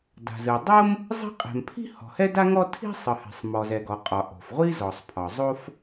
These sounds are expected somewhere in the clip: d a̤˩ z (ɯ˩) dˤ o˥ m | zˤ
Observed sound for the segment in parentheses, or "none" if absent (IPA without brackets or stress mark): ɯ˩